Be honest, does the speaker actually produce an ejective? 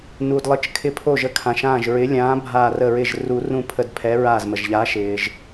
no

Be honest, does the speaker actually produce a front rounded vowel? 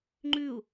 no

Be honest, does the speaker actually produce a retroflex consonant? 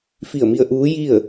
no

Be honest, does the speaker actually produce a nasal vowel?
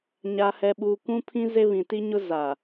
yes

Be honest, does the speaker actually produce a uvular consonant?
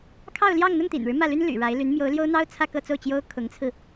no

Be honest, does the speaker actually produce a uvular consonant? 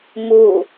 no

